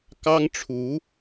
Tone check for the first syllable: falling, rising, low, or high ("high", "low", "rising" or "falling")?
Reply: high